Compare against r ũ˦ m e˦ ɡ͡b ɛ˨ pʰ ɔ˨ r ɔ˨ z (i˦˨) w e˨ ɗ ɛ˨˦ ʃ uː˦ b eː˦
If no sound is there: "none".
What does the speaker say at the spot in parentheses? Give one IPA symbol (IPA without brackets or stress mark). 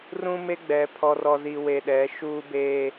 i˨